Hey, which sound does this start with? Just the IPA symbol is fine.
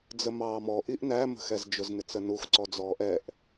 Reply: d͡z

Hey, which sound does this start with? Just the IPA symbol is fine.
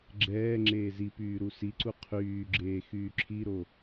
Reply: ɡ͡ǁ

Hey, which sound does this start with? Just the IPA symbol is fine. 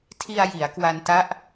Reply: tʰ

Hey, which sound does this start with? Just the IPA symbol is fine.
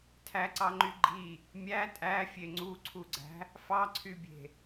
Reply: tʰ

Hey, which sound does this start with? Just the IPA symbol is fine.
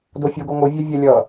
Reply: d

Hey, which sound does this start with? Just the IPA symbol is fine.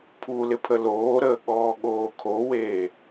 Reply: pʰ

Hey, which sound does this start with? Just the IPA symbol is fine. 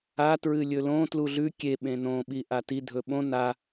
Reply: a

